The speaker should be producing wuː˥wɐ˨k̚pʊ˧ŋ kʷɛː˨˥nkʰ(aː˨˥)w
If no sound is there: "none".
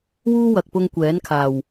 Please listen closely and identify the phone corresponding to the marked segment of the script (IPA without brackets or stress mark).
aː˨˩